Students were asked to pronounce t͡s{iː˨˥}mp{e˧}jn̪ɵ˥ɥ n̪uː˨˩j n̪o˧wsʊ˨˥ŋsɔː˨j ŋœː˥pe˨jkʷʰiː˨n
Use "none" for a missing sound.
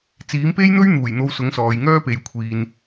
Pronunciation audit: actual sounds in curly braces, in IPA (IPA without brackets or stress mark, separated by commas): iː˨˥, e˥